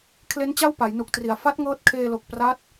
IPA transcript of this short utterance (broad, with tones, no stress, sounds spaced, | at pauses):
kʰ l e˦˥ n t͡ɕ a˥˩ w p a˩˦ j n u˨˩ k̚ t r i˩˦ a̯ f a˦˥ t̚ ŋ ɤː˦˥ t̚ kʰ eː˧ l o˨˩ k̚ p r a˦˥ t̚